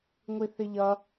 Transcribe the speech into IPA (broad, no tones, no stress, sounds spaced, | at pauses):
ŋʷ i θ ɪ ʎ ʌ